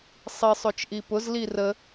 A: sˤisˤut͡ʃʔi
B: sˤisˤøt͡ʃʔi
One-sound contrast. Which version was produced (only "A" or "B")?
B